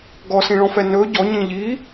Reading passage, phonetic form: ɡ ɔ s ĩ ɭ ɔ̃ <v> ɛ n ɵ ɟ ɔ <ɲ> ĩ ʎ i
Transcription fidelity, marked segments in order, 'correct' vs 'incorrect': incorrect: f, correct

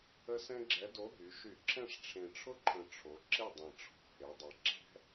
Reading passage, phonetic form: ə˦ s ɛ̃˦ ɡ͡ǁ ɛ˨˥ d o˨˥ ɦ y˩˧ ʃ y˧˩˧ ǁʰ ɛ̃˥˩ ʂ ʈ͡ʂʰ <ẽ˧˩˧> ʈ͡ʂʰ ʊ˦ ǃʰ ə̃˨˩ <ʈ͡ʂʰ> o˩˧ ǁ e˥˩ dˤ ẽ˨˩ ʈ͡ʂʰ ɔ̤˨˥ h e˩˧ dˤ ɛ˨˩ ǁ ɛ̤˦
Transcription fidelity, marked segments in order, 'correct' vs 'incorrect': incorrect: ẽ˨˩, correct

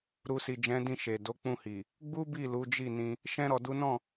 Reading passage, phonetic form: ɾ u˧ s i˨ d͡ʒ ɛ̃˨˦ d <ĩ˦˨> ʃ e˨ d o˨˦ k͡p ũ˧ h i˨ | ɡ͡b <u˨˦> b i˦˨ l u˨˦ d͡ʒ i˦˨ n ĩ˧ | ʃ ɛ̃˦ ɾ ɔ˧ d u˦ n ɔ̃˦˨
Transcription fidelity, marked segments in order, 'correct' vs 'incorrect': correct, incorrect: u˦

